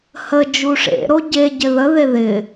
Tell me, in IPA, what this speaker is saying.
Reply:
h ə d͡ʒ u ʂ ḛ ɾ o ɟ e ɟ ɪ ð ə ð e ð ɪ

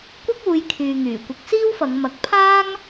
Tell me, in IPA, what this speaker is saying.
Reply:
kʷ ɐ˥ k̚ uː˨˧ j kʰ yː˨ ŋ yː˨˩ kʷ ɪ˨˥ k̚ s iː˥ w f ɐ˨˧ ŋ m ɐ˨˥ k̚ pʰ aː˥ ŋ

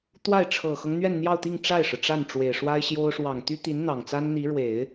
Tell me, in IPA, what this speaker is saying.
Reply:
t̪ w a˥˩ ɪ̯ ʈ͡ʂʰ ɤ˨˩ x ɤ˦ ŋ n̪ ɥ ɛ˥˧ n n̪ j ɑ˥˧ ʊ̯ t̪ i˥˧ ŋ ʈ͡ʂ a˥˩ ɪ̯ ʂ ɻ̩˩ ʈ͡ʂ a˥˩ n ʈ͡ʂ w e˨˩ ɪ̯ ʂ w a˥ ɪ̯ ɕ j o˥ ʊ̯ ʂ w ɑ˨˩ ŋ t̪ y˥ t̪ i˧˥ n n̪ ɑ˨˩ ŋ t͡s a˥ n n̪ i˧˥ ɻ w e˨˩˦ ɪ̯

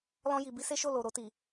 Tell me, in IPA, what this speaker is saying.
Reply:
l ɔ̃˧ j i˨ b i˧ s e˦ ʃ o˦˨ l o˨ ɾ o˧ t i˨

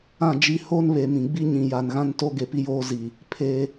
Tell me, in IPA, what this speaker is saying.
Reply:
ã˦˨ d͡ʒ i˦ h o˦ n β e˨ m ĩ˨ ɡ͡b i˦ ɲ ĩ˨ j a˨ n ɣ ã˦ n t o˦ ɡ e˨ p i˦ j oː˦ z i˨ | pʰ e˦

